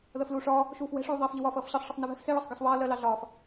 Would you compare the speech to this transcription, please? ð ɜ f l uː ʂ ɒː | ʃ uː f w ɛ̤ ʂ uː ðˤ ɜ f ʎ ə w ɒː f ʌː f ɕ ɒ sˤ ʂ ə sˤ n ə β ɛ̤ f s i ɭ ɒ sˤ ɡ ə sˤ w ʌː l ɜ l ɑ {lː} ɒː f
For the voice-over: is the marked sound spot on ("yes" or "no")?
no